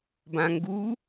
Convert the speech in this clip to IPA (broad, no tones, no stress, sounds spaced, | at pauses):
b ã ŋ ɡ u